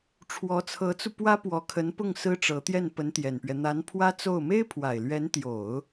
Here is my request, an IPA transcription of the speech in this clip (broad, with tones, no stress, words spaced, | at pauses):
ʈ͡ʂʰwɔ˧˥t͡sʰɤ˧˥t͡su˧ pwä˥pwɔ˧˥kʰə˧˥npʊ˥˩ŋ sɹ̩˥ʈ͡ʂɤ˧˥ t̪jɛ˥˩npə˧˥nt̪jɛ˨˩npɥɛ˦ n̪a˧˥npʰwä˥t͡so˥˩ʊ̯ me˥ɪ̯pʰwa˨˩ɪ̯lɥɛ˧˥nt̪jo˨˩˦ʊ̯